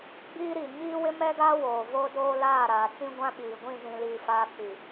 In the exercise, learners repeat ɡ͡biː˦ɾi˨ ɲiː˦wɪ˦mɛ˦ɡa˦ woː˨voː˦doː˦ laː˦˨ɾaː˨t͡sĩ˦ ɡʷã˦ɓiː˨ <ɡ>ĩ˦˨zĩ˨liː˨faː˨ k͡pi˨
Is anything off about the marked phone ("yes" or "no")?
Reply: yes